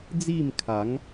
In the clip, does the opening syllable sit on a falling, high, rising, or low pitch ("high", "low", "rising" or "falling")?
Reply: falling